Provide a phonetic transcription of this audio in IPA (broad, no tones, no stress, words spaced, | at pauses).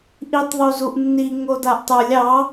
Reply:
ʔitˤðˤuzuʔnːi ŋodaʔtˤə˞lʲ ɑ